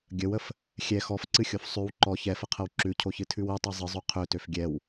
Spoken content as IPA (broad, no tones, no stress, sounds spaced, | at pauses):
ɡʲ ə w ə f | xʲ ɛ x ɔ f ǀ ɨ xʲ o f sˤ ʉ w ǃ ɔ ç ɛ f ə qʰ ə w ǁ ʉ cʰ o ç ɨ tʰ ʉ w ɨ tˤ ɛ zˤ ɨ zˤ ʉ qʰ ø t ø f ɡʲ ɛ w